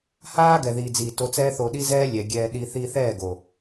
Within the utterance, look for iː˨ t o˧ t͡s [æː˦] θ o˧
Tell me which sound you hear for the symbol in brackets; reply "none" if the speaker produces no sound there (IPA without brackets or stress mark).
ɛː˦